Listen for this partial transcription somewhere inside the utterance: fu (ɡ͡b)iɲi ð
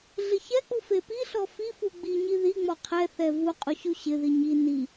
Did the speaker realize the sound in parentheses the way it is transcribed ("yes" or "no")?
yes